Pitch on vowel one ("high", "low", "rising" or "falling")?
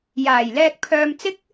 low